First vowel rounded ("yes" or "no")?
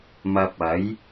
no